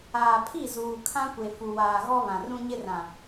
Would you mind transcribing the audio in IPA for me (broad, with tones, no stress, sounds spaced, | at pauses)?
aː˨ pʰ i˦˨ z uː˨ kʰ ã˦ kʷ e˨ f u˨ w aː˨ ɣ ɔ˦ β ã˨ r ũ˦ ɲ ɪ˦ r ã˨